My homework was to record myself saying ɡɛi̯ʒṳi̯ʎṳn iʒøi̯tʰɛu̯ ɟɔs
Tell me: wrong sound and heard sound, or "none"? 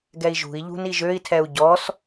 none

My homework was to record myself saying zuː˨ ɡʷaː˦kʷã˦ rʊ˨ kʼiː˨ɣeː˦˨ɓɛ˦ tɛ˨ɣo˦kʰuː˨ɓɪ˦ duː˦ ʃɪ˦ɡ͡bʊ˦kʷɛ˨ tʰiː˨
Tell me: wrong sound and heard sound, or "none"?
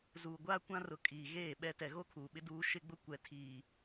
none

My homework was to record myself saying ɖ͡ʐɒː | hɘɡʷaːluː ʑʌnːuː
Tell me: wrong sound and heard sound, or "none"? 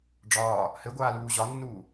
ʌ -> ɒ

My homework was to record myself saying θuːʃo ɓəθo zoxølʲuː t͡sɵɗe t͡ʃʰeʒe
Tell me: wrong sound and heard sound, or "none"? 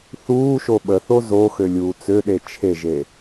ɵ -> ø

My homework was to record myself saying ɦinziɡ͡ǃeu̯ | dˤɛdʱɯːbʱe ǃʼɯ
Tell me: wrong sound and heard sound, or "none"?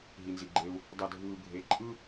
none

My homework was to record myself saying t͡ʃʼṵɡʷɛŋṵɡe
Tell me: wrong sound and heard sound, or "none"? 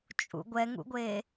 ɡ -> ɡʷ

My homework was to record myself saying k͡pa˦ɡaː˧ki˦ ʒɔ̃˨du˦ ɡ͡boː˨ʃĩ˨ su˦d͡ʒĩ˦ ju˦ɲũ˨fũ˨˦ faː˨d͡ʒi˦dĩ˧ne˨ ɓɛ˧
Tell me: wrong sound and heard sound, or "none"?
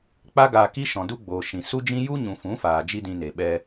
ʒ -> ʃ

